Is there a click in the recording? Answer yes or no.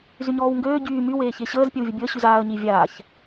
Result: no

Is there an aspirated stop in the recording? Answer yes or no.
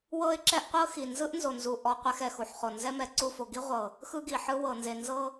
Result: no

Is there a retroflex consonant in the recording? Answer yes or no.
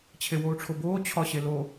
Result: yes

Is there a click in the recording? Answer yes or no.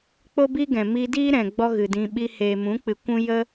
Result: no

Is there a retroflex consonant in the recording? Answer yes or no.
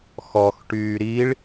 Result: yes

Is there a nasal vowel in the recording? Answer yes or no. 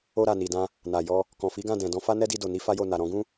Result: yes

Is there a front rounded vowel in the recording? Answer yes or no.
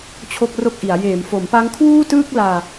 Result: no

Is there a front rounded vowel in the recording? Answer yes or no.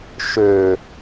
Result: yes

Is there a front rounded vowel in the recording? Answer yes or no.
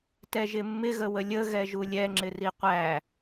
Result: no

